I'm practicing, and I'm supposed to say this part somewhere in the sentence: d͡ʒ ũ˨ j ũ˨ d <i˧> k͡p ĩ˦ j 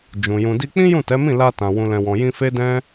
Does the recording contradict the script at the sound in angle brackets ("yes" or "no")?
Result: no